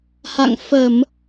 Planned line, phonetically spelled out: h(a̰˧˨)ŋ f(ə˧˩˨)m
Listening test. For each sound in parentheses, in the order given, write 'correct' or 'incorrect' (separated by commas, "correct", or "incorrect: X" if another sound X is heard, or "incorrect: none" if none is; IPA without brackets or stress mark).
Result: correct, correct